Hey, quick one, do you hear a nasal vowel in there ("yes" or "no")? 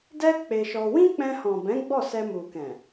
yes